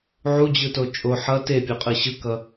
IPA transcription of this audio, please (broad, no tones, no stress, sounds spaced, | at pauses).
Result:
ʕ u d͡ʑ ɯ t o t͡ʃʼ o ħ ʌ t e pʲ o qʼ ɯ ɕ ɯ k ʌ